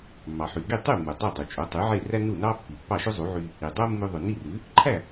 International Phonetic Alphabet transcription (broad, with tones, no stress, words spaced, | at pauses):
mːɑ˩ħy˩ɡi˥˩ tˤy˥˩mːu˩ dˤɑ˥˩dˤʉ˩ t͡ʃʼo˩˥tˤy˩˥ ʕe˥˩ræ˥ nu˥˩nɑ˥ pːi˩pːɑ˥˩ʃø˥ zˤu˩˥ʕy˧ | i˩ dˤo˥mːʉ˧ðˤʉ˩ ni˥˩rʉ˩˥ | ǃʰæ˥˩